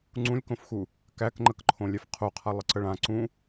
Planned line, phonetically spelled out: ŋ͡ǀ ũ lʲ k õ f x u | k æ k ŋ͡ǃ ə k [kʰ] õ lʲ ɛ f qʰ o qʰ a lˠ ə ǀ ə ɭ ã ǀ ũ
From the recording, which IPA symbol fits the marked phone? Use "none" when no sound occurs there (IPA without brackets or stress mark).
ǃʰ